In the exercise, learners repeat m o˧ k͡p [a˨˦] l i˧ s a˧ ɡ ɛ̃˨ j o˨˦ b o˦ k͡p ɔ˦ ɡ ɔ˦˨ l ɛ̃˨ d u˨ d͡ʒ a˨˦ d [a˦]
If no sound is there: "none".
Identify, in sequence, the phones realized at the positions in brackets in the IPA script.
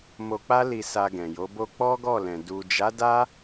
a˦, a˦

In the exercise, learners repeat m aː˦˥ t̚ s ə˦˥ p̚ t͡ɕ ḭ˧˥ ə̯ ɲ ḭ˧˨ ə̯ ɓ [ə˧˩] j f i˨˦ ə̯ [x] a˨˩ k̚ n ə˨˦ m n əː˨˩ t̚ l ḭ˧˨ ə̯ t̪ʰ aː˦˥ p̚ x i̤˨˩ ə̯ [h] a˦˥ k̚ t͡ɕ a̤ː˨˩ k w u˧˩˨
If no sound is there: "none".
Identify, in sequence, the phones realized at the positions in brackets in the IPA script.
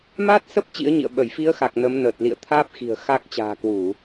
ə˧˩, x, x

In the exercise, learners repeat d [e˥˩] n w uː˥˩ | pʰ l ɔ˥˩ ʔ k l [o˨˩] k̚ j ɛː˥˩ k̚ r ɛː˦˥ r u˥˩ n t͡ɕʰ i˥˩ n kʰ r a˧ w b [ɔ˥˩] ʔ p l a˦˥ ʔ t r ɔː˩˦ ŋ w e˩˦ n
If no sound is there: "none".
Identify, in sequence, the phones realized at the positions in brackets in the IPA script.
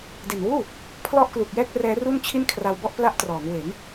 e˨˩, u˨˩, ɔ˥˩

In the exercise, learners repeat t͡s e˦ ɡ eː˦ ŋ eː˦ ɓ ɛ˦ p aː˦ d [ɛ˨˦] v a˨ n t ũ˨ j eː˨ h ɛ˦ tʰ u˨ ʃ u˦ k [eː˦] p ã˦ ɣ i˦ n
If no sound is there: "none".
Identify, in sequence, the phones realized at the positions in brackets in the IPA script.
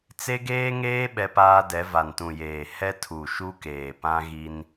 ɛ˨˦, eː˨

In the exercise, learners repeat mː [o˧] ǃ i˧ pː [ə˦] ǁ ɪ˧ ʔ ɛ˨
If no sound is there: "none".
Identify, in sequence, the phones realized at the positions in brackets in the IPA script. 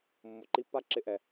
o˨, a˦

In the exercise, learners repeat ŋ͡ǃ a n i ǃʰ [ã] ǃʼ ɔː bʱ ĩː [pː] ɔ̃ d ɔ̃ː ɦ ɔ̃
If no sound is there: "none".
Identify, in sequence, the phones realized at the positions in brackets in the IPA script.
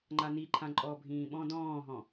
ã, ɓ

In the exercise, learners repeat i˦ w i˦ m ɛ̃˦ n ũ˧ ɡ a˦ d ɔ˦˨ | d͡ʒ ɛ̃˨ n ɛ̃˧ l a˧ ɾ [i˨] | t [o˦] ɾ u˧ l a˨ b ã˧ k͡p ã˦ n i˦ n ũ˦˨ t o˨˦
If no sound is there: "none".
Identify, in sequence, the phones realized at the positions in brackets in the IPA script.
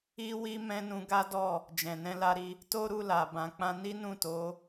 i˧, o˦

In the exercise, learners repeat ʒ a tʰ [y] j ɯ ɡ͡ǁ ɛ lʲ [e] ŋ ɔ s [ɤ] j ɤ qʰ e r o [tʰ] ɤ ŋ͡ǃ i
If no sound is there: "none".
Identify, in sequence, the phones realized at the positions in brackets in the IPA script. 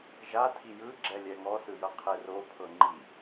i, ɛ, ɯ, pʰ

